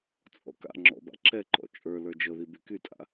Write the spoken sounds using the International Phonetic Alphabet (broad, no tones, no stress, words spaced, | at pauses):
t͡sʼɔ̰ka̰ŋ͡ǁɔ̰ ba̰ǁʰɛǃɔ̰ t͡ʃʼə˞ lə˞d͡ʒɤði bykytʼa̰